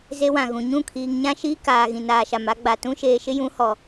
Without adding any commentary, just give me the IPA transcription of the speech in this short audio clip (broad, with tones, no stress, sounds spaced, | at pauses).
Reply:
z e˦ w ã˨ ɣ ũ˨ ɲ ũ˦˨ kʰ iː˨ ŋ ɲ ã˦ ʃ iː˦ k aː˨ ɣ ĩ˨ n aː˨ ʃ a˨ m a˦ ɡ͡b a˨ t ũ˦ ʃ eː˨ ʃ ɪ˦ j ũ˨˦ h ɔ˨